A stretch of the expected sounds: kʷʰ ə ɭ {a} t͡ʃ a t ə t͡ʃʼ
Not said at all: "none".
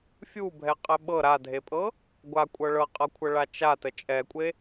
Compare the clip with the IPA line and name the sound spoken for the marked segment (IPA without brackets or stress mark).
a